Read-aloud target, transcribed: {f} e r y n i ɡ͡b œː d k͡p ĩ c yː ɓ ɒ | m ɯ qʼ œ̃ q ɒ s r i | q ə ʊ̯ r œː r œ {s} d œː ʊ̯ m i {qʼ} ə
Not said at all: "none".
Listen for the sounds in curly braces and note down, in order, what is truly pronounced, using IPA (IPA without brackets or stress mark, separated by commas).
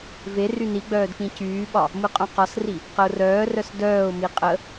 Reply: v, s, qʼ